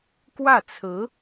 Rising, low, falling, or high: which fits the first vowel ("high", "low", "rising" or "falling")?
falling